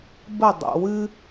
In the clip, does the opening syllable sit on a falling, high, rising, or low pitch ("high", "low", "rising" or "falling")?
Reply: falling